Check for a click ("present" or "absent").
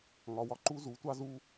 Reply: present